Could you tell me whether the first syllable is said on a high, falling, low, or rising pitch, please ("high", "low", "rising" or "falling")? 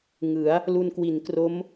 rising